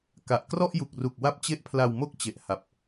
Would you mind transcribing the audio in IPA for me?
ka˨˩ʔ krɔ˥˩ʔju˨˩k̚ru˨˩k̚ wa˦˥p̚t͡ɕe˦˥ʔpʰla˧w mo˥˩k̚t͡ɕe˨˩ʔ ha˨˩p̚

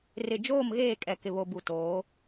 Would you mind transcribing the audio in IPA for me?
rɪ˨d͡ʒoː˦˨mɣeː˦˨kʼɛ˨ kɪ˨βo˨bu˨ toː˨˦

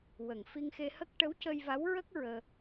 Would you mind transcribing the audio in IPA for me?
wə˨˩ŋ fi˧ŋxe˧hə˦˥k̚ ʈə˧˥wcə˧jva˧˥wɹə˦˥k̚ ɹəː˧

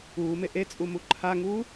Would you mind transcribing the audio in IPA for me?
uːme ʔet͡sʼumu ǃʰaŋuː

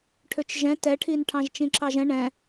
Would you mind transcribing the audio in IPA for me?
ʈʰøt͡ʃʒɛ̃ tɛʈʰinʈʰɑ̃ʒ t͡ʃĩǁɑʒɛ̃ ɳɛ̃

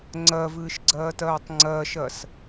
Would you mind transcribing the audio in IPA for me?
ŋ͡ǀɜvɨːʃɡ͡ǀɜːtɜːtˤ ŋ͡ǀɜʃɜs

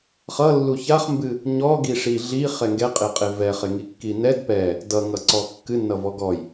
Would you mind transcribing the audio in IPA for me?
χʌ lːuçaχmbɨ | ɲɔɡi ʂiɮi χɛŋɡɛqʼeqʼe vɛχeŋi kːinɛd pɛ | dʌŋʌǀɔ kːɨnːʌvɔ ɡɔj

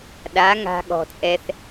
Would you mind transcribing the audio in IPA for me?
ɗa˨˦ ŋa̤˧ɠɔ̤˨t͡sʼɛ˧θ

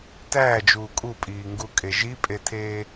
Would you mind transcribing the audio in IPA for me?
tæːd͡ʒuː kʼupʼiːŋɡukʼe ʒipʼetʰeː

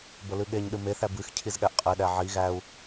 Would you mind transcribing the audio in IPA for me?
bəlɨɠeɲɗɨ meθæ bɨx cʰizɠæʔqʼiɗæ ʕi ɣæu̯

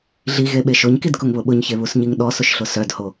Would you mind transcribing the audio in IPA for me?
ɮiɣeɓe ʃoɲkidkʊŋβʊ ɓʊɲçeβusɲiŋ ɗɔsʊʃɬʊ sœdho

